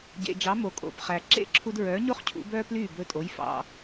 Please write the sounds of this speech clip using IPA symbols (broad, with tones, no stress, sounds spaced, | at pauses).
ɟ ḛ˩ d͡ʒ ɑ˩˥ m o˩ kʼ o̰˩ p χ æ˩ ǁ ḛ˥˩ ǁʰ u˧ d ɹ œː˩˥ ɲ o˥ χ cʰ ṵ˩˥ b œː˥ p l yː˥˩ b ɵ˧ tʼ o˩˥ j f ɑ̰˧